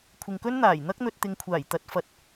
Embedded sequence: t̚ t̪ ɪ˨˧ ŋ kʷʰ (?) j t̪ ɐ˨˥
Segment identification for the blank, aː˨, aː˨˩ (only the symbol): aː˨˩